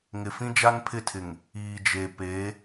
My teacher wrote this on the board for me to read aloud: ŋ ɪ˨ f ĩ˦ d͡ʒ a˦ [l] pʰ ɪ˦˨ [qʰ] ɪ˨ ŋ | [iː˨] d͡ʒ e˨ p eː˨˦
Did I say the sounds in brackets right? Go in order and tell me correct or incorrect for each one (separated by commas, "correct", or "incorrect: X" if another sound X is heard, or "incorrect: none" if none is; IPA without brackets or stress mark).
incorrect: n, incorrect: tʰ, correct